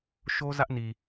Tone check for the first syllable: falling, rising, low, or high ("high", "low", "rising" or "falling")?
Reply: high